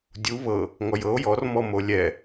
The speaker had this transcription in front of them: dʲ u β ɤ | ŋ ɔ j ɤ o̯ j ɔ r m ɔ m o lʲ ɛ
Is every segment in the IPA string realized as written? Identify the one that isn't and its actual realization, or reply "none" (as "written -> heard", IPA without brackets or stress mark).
none